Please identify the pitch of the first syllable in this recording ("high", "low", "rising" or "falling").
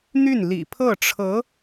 falling